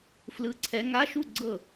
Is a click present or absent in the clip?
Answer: present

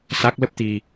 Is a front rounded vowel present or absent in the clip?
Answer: absent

